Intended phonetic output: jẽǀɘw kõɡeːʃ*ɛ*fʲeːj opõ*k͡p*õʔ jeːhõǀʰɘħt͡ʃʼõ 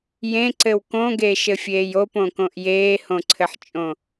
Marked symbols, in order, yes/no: no, no

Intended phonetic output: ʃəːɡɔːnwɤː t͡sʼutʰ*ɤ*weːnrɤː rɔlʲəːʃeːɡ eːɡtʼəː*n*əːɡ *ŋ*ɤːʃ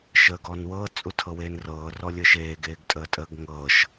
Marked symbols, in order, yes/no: yes, no, yes

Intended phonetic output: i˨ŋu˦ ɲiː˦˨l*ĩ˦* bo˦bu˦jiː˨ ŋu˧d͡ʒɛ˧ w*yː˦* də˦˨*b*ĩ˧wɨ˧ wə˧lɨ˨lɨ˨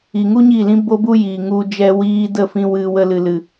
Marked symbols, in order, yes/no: yes, no, no

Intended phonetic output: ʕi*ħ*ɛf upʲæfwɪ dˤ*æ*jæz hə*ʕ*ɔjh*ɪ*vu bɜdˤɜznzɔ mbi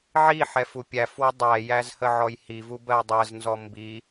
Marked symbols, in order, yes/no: yes, yes, yes, no

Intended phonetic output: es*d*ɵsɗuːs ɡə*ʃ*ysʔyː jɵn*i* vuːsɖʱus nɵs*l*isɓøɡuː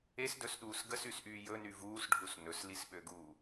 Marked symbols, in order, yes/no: yes, no, no, yes

